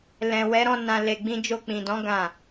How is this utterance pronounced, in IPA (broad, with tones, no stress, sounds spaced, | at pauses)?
l ɛ̃˨ w ɛ˨˦ ɾ ɔ̃˧ n ã˧ l e˧ ɡ͡b ĩ˧ d͡ʒ o˧ k͡p ĩ˨ d ɔ̃˨˦ ɡ ã˦˨